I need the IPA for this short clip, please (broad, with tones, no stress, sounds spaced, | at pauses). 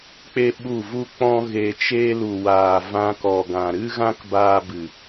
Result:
k͡p e˦ ɓ u˦˨ v u˦ k͡p ɔ̃˦ ɣ e˧ t͡ʃ eː˧ l u˨ w aː˨ v ã˧ k ɔ˨ ɡ ã˨ ɾ ɨ˦ ɣ ã˦ k b aː˧ b ɨ˨